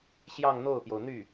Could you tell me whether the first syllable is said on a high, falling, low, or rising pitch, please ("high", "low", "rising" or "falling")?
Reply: falling